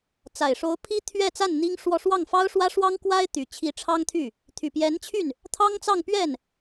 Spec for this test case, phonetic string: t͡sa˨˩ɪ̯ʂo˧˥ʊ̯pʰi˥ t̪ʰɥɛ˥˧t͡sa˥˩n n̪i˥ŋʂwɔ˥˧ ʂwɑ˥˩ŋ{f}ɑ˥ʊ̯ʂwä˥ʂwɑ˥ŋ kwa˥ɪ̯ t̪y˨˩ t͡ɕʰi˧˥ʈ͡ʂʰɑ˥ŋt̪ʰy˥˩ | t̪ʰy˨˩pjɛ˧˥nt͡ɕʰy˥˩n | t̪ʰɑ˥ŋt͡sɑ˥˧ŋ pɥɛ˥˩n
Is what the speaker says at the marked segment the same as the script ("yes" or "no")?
yes